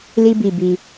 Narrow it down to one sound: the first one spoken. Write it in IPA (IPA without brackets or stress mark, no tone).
l